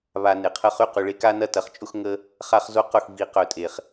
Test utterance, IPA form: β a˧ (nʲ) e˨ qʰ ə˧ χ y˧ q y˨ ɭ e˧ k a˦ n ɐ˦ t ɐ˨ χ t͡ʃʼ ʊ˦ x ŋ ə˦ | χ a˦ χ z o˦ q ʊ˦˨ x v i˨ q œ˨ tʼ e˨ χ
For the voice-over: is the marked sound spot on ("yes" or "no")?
no